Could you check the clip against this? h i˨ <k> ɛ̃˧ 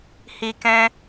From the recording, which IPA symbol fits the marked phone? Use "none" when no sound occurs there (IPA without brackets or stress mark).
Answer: k